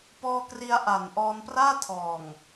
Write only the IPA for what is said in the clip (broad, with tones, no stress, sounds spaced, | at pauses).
p ɔː˧ k r i˧ a̯ ʔ a˨˩ n ʔ ɔː˧ n p r aː˥˩ tʰ ɔː˨˩ ŋ